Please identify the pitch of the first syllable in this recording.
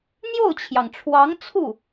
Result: falling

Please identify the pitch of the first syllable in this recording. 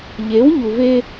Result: rising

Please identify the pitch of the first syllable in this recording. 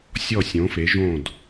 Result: falling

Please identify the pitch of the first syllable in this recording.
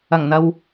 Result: low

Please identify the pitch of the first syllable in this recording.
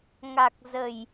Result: low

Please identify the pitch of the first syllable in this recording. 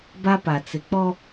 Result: high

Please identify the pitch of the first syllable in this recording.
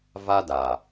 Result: high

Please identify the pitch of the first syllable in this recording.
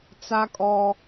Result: high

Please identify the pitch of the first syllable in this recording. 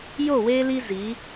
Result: falling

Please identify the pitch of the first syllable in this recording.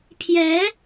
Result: rising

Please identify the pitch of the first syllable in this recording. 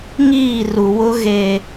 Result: falling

